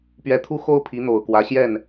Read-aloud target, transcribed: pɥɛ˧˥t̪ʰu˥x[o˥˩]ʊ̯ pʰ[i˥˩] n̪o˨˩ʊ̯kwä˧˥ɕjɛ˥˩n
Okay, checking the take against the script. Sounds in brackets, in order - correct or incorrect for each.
incorrect, incorrect

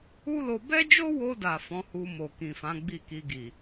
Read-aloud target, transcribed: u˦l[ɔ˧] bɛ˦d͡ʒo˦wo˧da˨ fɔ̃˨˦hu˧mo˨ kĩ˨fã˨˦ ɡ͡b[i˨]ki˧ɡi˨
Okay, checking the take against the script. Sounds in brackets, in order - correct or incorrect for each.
incorrect, incorrect

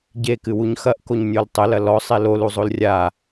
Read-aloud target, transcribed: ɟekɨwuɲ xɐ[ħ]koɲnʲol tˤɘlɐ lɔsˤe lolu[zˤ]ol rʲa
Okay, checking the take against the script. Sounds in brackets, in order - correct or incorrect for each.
incorrect, correct

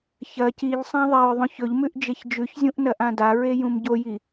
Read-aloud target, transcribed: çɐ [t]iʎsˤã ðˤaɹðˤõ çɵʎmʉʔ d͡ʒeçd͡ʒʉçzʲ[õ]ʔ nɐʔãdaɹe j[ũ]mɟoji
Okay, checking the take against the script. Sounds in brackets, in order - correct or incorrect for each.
incorrect, incorrect, correct

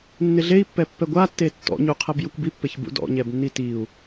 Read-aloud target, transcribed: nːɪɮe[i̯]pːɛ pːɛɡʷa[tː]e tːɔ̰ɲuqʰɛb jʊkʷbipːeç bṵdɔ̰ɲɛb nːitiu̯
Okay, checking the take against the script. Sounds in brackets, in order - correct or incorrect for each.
correct, correct

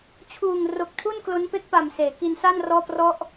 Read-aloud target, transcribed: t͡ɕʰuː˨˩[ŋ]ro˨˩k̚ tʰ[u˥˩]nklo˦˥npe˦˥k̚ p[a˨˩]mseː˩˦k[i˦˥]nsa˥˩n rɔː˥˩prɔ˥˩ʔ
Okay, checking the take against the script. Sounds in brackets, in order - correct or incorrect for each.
correct, correct, correct, incorrect

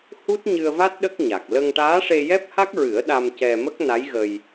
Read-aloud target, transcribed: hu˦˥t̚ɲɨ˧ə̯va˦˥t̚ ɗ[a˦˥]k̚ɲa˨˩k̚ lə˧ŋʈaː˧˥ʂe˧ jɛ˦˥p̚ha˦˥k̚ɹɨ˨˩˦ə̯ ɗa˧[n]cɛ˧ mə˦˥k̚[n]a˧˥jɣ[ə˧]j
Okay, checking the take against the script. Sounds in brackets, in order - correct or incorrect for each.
incorrect, incorrect, correct, correct

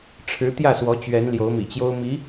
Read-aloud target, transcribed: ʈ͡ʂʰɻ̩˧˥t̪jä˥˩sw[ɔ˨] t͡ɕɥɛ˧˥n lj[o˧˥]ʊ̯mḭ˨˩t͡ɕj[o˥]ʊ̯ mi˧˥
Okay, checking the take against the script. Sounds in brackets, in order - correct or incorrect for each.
incorrect, correct, correct

